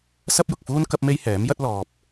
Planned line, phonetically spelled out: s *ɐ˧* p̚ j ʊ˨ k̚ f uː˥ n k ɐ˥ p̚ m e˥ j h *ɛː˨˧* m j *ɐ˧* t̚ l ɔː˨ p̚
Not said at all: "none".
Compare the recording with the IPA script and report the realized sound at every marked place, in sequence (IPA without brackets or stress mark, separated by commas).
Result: ɐ˥, ɛː˨˥, ɐ˥